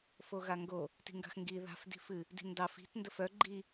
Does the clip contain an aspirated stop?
no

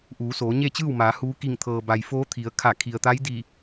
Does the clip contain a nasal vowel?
no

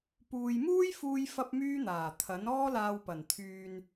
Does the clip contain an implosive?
no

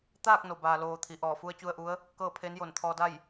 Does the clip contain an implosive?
no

